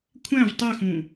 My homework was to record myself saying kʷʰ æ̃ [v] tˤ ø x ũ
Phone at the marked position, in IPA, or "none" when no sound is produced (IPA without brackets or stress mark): v